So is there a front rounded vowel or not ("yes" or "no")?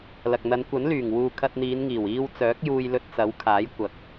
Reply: yes